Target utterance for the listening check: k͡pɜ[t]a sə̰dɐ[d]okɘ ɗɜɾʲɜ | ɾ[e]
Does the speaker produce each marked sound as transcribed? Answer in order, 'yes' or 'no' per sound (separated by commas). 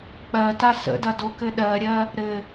yes, yes, no